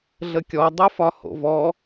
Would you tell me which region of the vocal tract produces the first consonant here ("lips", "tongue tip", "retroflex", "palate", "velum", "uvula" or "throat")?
tongue tip